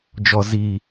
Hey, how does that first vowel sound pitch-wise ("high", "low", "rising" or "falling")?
high